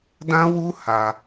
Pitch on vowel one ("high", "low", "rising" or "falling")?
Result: high